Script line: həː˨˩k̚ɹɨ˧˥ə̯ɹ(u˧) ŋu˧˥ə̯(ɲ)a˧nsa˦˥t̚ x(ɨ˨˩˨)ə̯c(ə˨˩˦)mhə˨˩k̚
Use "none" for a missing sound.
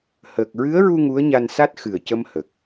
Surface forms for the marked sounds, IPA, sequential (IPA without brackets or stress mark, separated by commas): u˧, ɲ, ɨ˨˩, ə˧